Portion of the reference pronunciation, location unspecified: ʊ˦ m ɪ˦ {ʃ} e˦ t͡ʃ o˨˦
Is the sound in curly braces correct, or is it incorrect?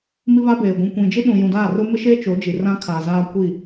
correct